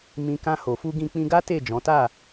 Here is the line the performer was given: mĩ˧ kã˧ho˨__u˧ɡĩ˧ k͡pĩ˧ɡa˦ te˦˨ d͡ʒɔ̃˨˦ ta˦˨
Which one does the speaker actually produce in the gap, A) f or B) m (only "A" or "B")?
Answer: A